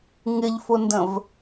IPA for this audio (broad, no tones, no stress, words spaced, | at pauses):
ŋɪʎfʊndə̃v